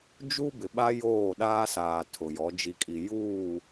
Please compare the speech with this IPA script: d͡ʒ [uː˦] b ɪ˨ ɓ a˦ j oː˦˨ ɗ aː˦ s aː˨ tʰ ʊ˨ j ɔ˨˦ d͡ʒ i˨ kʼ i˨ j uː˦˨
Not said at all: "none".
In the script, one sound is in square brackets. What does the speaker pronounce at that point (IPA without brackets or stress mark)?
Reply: u˦